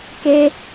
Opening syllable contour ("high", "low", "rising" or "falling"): high